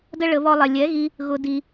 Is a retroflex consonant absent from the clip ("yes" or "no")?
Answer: no